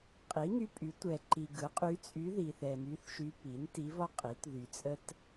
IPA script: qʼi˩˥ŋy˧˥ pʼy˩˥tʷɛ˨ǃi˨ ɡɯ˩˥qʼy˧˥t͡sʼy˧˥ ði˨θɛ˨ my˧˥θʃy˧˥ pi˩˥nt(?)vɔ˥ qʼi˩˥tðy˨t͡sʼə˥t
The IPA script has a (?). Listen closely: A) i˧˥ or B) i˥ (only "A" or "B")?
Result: A